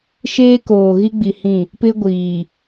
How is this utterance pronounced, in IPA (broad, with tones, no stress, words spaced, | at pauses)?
ʃeː˦ koː˨ɣi˦ɡ͡bi˨hĩ˦˨ | pɪ˦ɡʷiː˨